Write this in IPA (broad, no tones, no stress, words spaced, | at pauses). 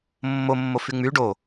mːomːo fyŋ͡my ɖo